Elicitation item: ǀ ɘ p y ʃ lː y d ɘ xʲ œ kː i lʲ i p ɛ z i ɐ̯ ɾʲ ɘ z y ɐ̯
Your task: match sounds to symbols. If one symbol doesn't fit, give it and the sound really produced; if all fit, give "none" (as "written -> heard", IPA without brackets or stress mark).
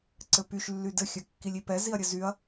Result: none